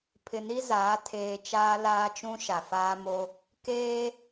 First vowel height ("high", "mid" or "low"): high